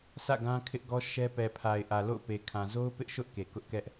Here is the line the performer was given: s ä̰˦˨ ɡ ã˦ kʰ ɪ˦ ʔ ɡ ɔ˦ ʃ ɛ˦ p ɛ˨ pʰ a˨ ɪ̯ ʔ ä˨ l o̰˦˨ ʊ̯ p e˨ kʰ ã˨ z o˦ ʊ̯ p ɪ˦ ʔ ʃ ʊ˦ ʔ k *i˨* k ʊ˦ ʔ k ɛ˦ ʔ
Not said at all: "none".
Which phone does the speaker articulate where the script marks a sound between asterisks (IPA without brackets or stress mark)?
e˨